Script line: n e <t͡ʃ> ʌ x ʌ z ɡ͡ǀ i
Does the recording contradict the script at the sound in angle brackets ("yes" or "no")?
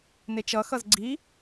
no